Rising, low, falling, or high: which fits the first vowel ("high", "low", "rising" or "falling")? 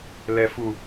low